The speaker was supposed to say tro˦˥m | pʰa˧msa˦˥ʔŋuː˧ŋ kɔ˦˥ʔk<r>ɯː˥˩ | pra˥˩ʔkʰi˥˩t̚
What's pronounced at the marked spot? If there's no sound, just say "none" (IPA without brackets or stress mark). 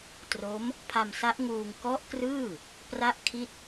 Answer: r